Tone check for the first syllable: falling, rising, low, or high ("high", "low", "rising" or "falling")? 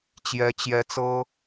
high